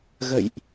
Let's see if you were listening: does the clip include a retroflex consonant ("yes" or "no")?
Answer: no